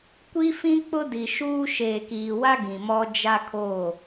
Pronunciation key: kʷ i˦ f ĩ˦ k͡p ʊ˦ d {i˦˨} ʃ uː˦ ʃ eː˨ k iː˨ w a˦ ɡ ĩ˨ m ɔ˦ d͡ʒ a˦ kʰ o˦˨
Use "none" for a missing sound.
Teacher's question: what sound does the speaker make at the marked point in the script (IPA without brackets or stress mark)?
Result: i˨